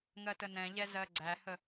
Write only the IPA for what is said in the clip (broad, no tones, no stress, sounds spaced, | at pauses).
ŋ ɜ t ə n ɛ̃ ʎ ɛ z ɜ ɡ͡ǀ æ h ə